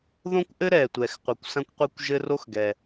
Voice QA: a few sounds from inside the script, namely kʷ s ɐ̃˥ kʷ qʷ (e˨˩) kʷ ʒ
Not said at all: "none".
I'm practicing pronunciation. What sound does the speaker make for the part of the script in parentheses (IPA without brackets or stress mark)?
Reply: e˥